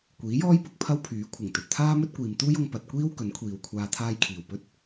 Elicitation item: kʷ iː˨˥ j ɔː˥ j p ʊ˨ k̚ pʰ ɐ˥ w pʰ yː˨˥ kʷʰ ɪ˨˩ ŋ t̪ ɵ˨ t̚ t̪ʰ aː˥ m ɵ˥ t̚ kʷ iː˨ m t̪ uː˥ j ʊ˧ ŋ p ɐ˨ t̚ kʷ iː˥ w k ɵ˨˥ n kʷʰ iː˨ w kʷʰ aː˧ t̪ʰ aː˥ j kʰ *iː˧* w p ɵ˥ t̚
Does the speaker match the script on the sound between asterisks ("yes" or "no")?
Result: no